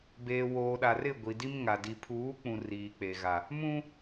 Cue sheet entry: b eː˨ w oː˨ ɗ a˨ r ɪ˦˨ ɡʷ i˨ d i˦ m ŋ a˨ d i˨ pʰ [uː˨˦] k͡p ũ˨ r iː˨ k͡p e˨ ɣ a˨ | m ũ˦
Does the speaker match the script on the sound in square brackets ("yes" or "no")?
yes